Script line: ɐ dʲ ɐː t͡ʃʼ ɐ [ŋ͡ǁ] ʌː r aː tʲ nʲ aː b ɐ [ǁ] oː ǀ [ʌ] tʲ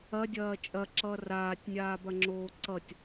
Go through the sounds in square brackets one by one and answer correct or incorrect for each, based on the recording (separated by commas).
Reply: incorrect, incorrect, correct